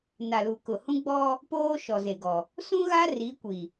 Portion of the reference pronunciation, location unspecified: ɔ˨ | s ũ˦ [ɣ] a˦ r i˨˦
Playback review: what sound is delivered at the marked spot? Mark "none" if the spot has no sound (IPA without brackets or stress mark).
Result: ɣ